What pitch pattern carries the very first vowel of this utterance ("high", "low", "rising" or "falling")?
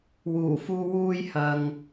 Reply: low